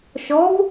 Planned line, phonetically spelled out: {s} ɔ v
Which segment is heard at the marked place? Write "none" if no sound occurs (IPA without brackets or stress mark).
ʃ